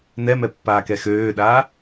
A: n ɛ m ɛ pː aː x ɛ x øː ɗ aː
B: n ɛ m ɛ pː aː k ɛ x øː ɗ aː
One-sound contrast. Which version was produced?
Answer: B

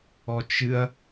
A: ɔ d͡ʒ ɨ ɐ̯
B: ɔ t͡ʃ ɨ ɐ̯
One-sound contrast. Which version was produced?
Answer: B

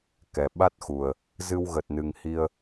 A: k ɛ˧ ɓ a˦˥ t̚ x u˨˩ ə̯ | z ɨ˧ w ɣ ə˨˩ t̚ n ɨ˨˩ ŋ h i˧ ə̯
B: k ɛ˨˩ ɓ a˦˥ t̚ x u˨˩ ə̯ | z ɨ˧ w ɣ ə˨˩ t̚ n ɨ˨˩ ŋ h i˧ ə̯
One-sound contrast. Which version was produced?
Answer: B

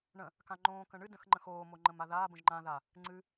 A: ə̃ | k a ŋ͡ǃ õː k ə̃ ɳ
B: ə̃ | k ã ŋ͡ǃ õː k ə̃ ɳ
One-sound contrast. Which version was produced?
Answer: B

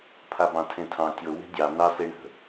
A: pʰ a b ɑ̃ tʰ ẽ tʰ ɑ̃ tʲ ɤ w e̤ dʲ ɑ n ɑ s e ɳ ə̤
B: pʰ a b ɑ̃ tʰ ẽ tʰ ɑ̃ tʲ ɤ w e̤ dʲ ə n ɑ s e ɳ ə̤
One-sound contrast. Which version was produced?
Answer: A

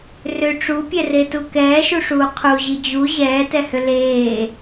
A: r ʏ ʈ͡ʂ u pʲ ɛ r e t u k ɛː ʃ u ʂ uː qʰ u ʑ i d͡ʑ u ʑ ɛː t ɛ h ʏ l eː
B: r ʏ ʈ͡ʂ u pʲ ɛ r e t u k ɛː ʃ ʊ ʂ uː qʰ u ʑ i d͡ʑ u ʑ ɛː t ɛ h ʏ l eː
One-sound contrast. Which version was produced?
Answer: A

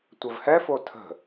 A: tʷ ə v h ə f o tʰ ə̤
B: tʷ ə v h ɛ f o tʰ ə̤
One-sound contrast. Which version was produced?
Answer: B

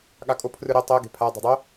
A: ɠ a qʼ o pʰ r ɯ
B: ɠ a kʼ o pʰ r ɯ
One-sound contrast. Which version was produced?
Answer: B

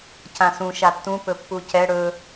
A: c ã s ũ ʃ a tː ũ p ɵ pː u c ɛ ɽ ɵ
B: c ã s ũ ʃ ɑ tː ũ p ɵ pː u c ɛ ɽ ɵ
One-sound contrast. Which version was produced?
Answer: A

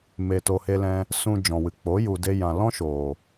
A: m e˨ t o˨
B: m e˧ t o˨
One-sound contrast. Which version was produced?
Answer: A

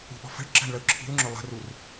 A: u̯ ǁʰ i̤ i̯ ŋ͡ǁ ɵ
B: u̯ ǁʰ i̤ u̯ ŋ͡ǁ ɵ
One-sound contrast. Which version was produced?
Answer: B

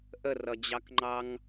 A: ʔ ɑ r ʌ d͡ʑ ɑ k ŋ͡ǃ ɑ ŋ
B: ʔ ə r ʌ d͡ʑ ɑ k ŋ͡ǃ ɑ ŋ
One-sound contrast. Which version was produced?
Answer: B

